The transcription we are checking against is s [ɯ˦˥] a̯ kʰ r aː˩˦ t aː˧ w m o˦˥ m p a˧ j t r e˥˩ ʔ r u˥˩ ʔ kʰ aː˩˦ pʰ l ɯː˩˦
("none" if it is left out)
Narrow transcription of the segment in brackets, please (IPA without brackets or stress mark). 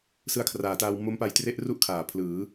ɯ˦˥